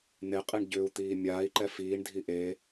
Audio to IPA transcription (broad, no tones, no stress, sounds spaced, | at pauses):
n̪ e qʼ i ɳ ɟ ʏː u̯ t̪ iː mʲ aː i̯ ǃ ɛ f iː ɳ dʱ i ʔ e